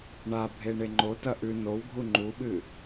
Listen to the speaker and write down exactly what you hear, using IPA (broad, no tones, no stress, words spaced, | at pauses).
ɳa bʱeɳeŋ͡ǃo tɐʔʉ nowɡʱu ŋ͡ǃuɓɨ